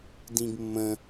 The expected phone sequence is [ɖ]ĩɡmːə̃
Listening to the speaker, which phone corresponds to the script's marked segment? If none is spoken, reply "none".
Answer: d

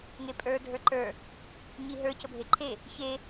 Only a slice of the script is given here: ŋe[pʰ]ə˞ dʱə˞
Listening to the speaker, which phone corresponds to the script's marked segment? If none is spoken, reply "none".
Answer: pʼ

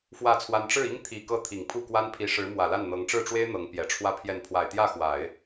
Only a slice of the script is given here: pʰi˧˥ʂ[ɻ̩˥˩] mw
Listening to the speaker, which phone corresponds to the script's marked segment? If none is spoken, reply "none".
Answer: ɻ̩˧˥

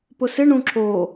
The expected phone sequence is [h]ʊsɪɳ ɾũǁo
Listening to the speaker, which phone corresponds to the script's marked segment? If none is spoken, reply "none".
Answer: p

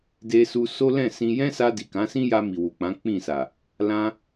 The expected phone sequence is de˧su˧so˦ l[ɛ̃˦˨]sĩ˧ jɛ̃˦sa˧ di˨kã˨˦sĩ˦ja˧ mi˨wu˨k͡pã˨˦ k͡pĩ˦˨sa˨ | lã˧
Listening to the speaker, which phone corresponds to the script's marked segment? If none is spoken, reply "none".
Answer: ɛ̃˦˨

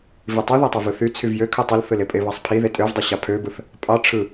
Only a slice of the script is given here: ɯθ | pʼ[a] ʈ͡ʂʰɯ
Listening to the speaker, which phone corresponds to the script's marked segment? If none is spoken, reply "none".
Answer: ɑ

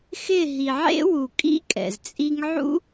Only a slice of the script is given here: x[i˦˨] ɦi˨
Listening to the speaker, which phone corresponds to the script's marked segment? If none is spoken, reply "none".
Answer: ɪ˦˨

